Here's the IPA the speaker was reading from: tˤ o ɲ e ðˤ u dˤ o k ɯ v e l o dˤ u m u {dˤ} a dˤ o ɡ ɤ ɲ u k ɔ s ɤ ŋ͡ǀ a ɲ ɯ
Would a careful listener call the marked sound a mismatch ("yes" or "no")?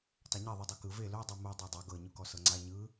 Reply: no